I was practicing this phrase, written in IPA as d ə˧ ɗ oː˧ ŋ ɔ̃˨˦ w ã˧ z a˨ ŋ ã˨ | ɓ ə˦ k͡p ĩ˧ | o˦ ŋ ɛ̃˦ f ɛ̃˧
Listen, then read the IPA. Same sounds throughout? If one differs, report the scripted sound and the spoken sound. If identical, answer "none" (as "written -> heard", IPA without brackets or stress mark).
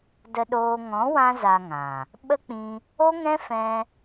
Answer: none